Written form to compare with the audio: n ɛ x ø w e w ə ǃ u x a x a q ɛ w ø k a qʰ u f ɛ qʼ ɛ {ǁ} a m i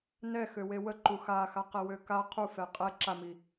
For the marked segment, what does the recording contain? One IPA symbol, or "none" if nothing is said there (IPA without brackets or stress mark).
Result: ǁ